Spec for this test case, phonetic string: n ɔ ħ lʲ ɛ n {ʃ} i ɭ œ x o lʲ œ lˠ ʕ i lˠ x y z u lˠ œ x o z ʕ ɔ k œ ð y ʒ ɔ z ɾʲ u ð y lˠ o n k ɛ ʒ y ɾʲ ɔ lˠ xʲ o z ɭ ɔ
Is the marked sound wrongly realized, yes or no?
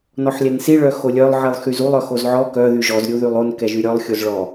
yes